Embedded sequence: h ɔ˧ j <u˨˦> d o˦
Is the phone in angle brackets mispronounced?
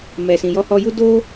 yes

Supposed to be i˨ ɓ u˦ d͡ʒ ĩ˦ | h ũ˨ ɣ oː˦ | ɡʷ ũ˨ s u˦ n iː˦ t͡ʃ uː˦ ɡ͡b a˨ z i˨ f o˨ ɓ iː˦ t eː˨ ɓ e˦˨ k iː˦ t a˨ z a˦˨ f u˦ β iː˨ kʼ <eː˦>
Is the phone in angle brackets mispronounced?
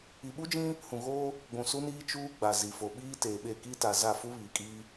yes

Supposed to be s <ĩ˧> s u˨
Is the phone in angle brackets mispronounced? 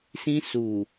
no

